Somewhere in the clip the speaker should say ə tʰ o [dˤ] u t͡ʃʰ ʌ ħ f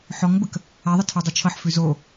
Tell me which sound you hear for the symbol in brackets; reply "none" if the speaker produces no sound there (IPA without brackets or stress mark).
dˤ